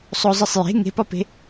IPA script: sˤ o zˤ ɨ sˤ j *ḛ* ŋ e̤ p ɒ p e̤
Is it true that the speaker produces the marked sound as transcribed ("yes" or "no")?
no